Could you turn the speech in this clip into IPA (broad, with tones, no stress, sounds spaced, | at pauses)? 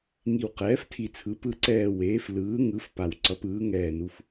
ŋ i˨˩ w q ɛː˩˧ f tʰ i˨˩ t͡sʰ ɯ˩˧ p ɯ˨˩ ǀ ɛː˨˩ w eː˩˧ f l ɯː˩˧ ŋ ɯ˩˧ f p a˨˩ w ǀ ʌ˩˧ p ɯː˩˧ ŋ ɛː˨˩ n u˩˧ f